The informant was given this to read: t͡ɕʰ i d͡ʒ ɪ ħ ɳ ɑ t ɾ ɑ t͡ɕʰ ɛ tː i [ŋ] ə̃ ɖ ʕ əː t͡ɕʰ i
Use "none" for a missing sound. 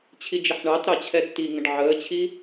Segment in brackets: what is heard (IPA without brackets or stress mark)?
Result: ŋ